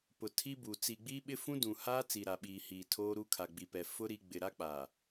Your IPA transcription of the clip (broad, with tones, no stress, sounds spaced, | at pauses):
p ʊ˨ tʰ i˦ b u˨ t͡s i˨ ɡ͡b i˦ ɓ ɪ˦ f ũ˦ d ũ˨ h aː˦ t͡s i˨ ɾ a˨ ɓ iː˨ h iː˨ tʰ oː˦ ɾ u˦ kʰ a˨ ɡ͡b i˨ p ɛ˨ f ʊ˦ ɾ i˦ ɡ͡b ɪ˨ ɾ a˦ k͡p a˨